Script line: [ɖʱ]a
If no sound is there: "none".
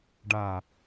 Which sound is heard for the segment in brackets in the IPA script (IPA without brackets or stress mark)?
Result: ɖ